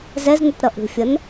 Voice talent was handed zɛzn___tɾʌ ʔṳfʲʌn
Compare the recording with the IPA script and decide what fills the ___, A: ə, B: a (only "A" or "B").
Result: A